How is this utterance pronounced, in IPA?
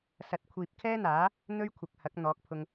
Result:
sɐ˨t̚kʷʰiː˨p̚kʰɛː˥n̪aː˨˥ | n̪ɵ˥ɥkʷʰɐ˨k̚hɐ˨˥k̚ n̪ɔː˨˥k̚pʰʊ˧ŋ

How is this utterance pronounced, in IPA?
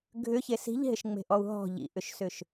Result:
ɡʱʏçe si̤ʎɦɪʃŋ͡me̤ʔɔu̯ ɦɔ̤ ʎḭʔʏʃsʏʃ

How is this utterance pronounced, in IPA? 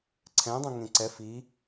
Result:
ǀʰɛ̃dˤũ ŋẽǀɛ fi

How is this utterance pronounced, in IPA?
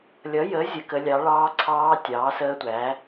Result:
lʲʌ˨˥ jə˨˥ zʲə˨˥kə˨˥lʲɑ˨˥ ɭɑː˦˥ǀʰɑː˦˥ tʲɑː˨˥səː˦˥tʷæː˨˥

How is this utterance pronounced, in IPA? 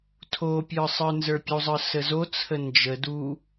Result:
tʰopʲə˞ sˤə˞nzə˞pʲuzˤə˞ səzot͡sʰə nd͡ʒə du

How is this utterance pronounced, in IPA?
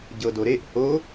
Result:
ɟɤdoɾeʔ ho

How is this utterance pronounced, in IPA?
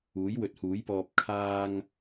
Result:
uː˨˥jwɵ˨˥t̚huː˨˥jpɔː˧p̚ kʰaː˧ŋ

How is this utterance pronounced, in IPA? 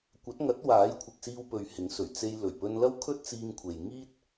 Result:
kʷɐ˨˥t̚ŋɐ˨˥t̚ waː˨˥jkʷʰɪ˨k̚siː˧w pɵ˨ɥ hɪ˨˥ŋsɵ˨˩ɥ t͡se˧j lɵ˨˩ɥpɵ˧nlɐ˥w kʰɵ˥t̚t͡siː˧ŋ kʷʰe˨j ŋiː˥t̚

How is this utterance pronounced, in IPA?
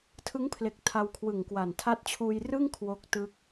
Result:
tʰɯ˦˥ŋpʰle˨˩k̚ tʰa˧wkʰwɯ˨˩ŋkwa˨˩n tʰa˦˥t̚t͡ɕʰuː˧j rɯ˥˩ŋ kʰwo˦˥k̚tɯ˦˥k̚

